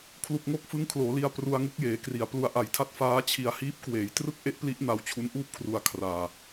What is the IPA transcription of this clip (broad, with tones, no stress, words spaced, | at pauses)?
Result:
kʰlu˨˩k̚ŋo˥˩k̚fɯ˦˥ŋ kʰloː˩˦li˧a̯ pru˧a̯ŋu˦˥k̚jeː˩˦kri˩˦a̯ plu˧a̯ʔa˨˩jtʰa˥˩t̚ faː˦˥t͡ɕʰi˧a̯ hiː˦˥p̚kweː˩˦j trɯ˥˩k̚ʔe˦˥ʔpli˦˥ʔna˧w t͡ɕʰu˦˥nʔuː˥˩p̚kʰru˧a̯ kʰraː˧